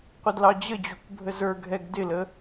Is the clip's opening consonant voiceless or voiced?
voiceless